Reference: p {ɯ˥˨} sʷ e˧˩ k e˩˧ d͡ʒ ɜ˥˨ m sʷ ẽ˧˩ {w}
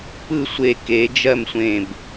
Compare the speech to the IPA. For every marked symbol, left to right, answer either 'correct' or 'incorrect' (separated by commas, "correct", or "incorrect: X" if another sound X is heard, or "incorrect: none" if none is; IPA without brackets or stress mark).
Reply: correct, incorrect: b